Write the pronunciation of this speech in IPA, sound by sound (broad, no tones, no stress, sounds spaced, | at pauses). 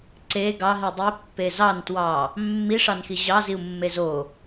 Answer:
ǀ e ɡ ɑ ɦ i dˤ i pː e z ɑ n t w ɑ | mː i ʂ ɑ n x i ʑ ɑ z i u̯ mː e z o